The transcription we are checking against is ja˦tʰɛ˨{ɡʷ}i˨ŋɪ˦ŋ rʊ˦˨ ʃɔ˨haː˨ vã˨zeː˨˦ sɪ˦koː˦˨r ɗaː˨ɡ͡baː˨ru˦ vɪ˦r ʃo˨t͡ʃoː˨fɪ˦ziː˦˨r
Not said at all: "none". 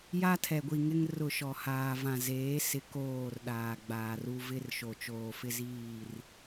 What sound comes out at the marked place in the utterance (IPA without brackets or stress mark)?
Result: ɡʷ